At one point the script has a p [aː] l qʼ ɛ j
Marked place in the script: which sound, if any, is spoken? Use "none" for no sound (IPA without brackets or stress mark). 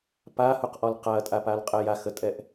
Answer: a